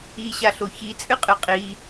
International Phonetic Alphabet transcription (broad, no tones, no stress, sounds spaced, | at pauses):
i ɕ a ɬ o ç i t͡sʼ ɨ qʼ ɨ qʼ i